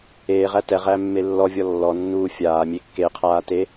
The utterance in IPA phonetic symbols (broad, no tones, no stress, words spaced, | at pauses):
eːʁæ tɛʁæ mːelːɔvʲɔ lːɔnːuː fʲaː mʲekːeqʰaː te